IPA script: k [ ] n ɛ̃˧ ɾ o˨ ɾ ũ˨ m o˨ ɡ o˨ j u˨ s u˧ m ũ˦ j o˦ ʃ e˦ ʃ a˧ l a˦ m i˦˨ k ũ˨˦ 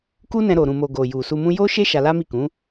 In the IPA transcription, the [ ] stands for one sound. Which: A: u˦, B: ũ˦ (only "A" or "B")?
A